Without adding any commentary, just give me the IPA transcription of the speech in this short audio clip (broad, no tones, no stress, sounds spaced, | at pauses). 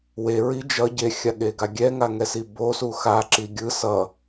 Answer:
w e ɹ i d͡ʒ ʌ ɟ e xʲ a ɠ e ɡ a ɡʲ ɛ ŋ a ŋ ɛ s i b o s u x a ǁ i ɡʲ ɯ s ʌ